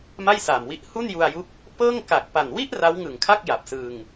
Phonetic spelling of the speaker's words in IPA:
m a˥˩ j s aː˨˩ m w i˦˥ ʔ h u˥˩ n j u˧ a̯ j u˦˥ k̚ | p ɤː˥˩ ŋ k a˨˩ k̚ p a˨˩ n w i˥˩ ʔ r a˦˥ w ŋ ɯ˨˩ ŋ kʰ a˥˩ k̚ j a˨˩ p̚ s ɯː˧ ŋ

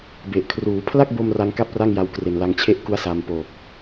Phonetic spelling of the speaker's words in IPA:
b e˨˩ ʔ kʰ r uː˩˦ pʰ l a˥˩ k̚ b o˧ m r a˦˥ ŋ k a˥˩ p̚ r a˥˩ ŋ j a˧ w k r e˨˩ n l a˨˩ ŋ t͡ɕʰ e˦˥ ʔ k u˦˥ a̯ s a˨˩ m p o˨˩ k̚

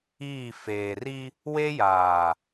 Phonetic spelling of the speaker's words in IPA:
iː˦˨ f eː˨ r i˦ | w e˦ j aː˨

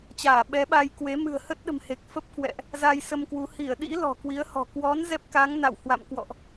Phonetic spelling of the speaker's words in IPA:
t͡ɕ aː˧˩ ɓ ɛ˨˦ ɓ a˧ j k w e˨˦ m ɨ̤˨˩ ə̯ h ə˦˥ t̚ ɗ ə̤˨˩ m h e˨˩ k̚ f ə˦˥ p̚ k w ɛ̰˧˨ ʔ | z a˧ j s ə˧ m k w u˨˦ h i˧˩ ə̯ ɗ ḭ˧˥ l ɔ̤˨˩ k w i˨˦ ə̯ h ɔ̤˨˩ k w ɔ˨˦ n z ɛ˦˥ p̚ k a˨˦ ŋ n a̰˧˨ w h w a̰˧˨ m k w ɔ̰˧˨ ʔ

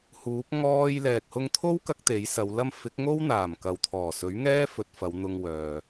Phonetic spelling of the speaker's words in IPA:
h uː˨˥ p̚ ŋ ɔː˧ j l ɛː˨ k̚ h ʊ˧ ŋ t̪ʰ o˥ w k ɐ˧ k̚ t̪ e˨˥ j s ɐ˨˧ w l ɐ˥ m f ɪ˨˥ k̚ ŋ o˥ w n̪ aː˨˩ m k ɐ˨ w t̪ʰ ɔː˨˩ s ɵ˨˥ ɥ ŋ ɛː˥ f ɵ˧ t̚ f ɐ˨˧ w n̪ ʊ˧ ŋ w œː˨

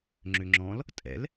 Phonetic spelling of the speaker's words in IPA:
ŋ͡ǁ ʏ ŋ͡ǁ ɔ̃ l | tʼ ɛ̰ l

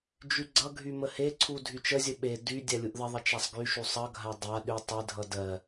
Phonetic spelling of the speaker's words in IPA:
d͡ʒ y ɡ͡ǀ ʌ ɡʱ y m ə h e ǀʰ u dʱ y t͡ʃ ə zʲ ə ɓ e d y dʲ a lʲ u ʔ ð ə ðˤ ə t͡ʃ a sˤ ɡ y ʃ u sˤ ʌ ɡʱ a dˤ a ɗ y tˤ ɪ dʱ ʌ d ɜ

